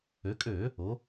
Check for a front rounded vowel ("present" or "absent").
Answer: present